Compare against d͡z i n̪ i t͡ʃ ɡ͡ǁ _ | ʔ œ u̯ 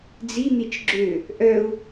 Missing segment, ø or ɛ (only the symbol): ø